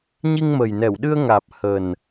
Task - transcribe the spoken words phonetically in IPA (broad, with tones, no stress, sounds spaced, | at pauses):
ɲ i˧ ŋ m ə˨˩ j n ɛ˧˩ w ɗ ɨ˧ ə̯ ŋ aː˨˩ p̚ h ə˨˩ n